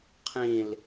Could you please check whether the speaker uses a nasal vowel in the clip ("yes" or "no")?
yes